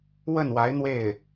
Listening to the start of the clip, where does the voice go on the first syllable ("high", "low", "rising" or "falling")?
falling